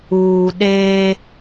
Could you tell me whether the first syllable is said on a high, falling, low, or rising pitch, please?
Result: low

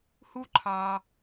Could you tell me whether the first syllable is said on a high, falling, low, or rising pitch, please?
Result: high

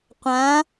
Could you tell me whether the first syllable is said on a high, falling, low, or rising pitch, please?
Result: rising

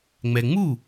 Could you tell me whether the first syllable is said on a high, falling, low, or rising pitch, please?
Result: low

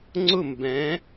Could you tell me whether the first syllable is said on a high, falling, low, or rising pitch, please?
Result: falling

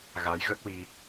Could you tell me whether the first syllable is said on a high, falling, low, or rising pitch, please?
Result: rising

